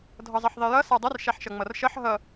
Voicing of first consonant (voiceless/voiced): voiced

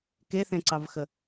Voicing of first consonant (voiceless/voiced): voiceless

